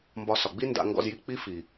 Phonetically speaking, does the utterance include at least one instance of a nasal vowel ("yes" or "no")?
no